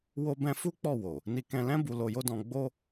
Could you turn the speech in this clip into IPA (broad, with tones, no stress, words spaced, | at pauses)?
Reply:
wo˦bɛ̃˦ fu˦k͡pɔ˦˨wo˨ | ni˧kɛ̃˧lɛ̃˦ bu˧lo˧jo˦dɔ̃˧ ɡ͡bo˦